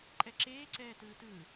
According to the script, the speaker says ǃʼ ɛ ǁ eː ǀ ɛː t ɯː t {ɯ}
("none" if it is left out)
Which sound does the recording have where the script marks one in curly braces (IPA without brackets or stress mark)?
ɯː